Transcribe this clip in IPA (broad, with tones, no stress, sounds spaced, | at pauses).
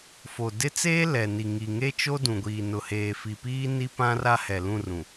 f o˨ d ɪ˦ t͡s eː˦ l ɛ˨ n i˨ ŋ i˨ ŋ e˦ t͡ʃ o˦ d ũ˨ ɡʷ iː˨ n ʊ˨ h eː˨ f i˨ p iː˦ n i˦ p ã˦ r a˦ h ɛ˨ l ũ˦˨ r ũ˨